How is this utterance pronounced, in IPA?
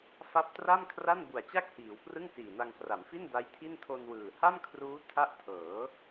f a˦˥ p̚ t r a˥˩ m kʰ r a˥˩ n b u˨˩ a̯ t͡ɕ a˥˩ k̚ h iː˩˦ w p r ɯ˥˩ ŋ s iː˨˩ n a˧ ŋ k r a˩˦ m f i˥˩ n d a˦˥ j tʰ i˥˩ n tʰ o˧ n w ɯː˨˩ h a˥˩ m kʰ r uː˦˥ tʰ a˥˩ ʔ tʰ ɤː˩˦

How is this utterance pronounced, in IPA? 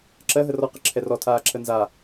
ǁ ɜ ɦ ə r ɔ q ə ǁʰ ɛ r ɔ tʰ aː ǁʰ ə n z a

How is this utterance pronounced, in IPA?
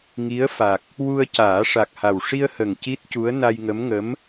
ŋ i˧˥ ə̯ f a˨˩ k̚ | w u˧ ə̯ c aː˨˩˦ ʂ a˨˩ k̚ h a˨˩ w ʂ i˧ ə̯ h ə˨˩ ŋ c i˦˥ t̚ c u˧˥ ə̯ n a˧ j ŋ ə˧˥ m ŋ ə˧˥ m

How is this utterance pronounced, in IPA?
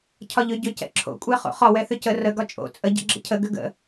cʰ ɒ ʎ ʏ ɟ ʏ c ɛ̰ ǁʰ o̰ kʷʼ ɛ χ o̰ χ ɒ w ɛ θ ʏ c ə r ə ɡ ɒ t͡ʃʼ o̰ t͡sʼ ə ɟ ɛ̰ ɡ͡ǁ ə̰ cʰ ə ɡ ʏ ɡ ə̰

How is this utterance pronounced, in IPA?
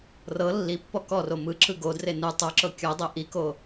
r ɤ lː i pː ɔ k ɔ r o m ɯ ǁ ɯ ɡ o d r e n ɯ tˤ o ǁ ɤ kʲ ɯ dˤ e ʔ i k o

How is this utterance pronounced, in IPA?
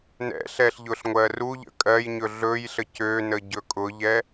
n ɛ̰ ɬ ɛ ɬ ʎ ʊ ɬ ŋʷ ɜ r u ʎ ə̰ kʼ ɜ j ɲ ɵ ɮ ɵ j ɬ ə c ø n ə ɟ ɵ kʼ ʊ ʎ ɛ

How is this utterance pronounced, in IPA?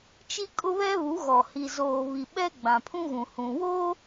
t͡ʃ i˦ kʼ ʊ˦ β ɛ˦ β u˨˦ ɣ ɔ˨ h i˨ z oː˨ β i˨ ɓ ɛ˦ ɡ͡b ã˨ pʰ ũ˦ ɣ ũ˨ h ũ˨ w o˦

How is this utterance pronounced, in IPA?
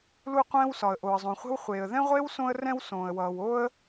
l u˥ qʷ ɛ̃ː˥ w s ɒ˩ ə̯ ʔ o˩ ə̯ zˤ õ˩ χʷ e̤˥ w χʷ eː˩ ə̯ ð ɛ̃˥ ʁʷ eː˥ w s õ˥ ə̯ r ɛ̃˥ w s õː˩ ə̯ w ʌː˩ w o˥ ə̯

